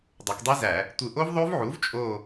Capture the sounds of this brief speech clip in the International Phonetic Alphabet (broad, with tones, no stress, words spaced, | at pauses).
dˤo˩˧kdˤi˦˥zæ˧˩˧ | tʷɯ˨˩ʔo˦˥v ðˤo˦˥vʕu˩˥v t͡ʃʼo˦˨